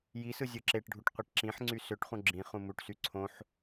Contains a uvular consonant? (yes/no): yes